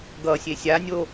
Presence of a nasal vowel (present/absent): absent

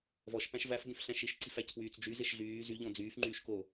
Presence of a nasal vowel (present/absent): present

